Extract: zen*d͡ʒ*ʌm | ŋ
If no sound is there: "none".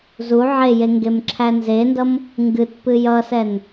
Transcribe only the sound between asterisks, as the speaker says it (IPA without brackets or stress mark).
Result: d